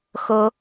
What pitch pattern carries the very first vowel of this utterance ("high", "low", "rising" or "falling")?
rising